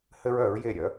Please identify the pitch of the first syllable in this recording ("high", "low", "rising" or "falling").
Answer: high